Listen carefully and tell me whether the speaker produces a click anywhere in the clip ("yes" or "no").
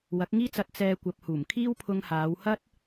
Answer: no